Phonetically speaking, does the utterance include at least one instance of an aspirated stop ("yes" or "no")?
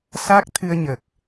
yes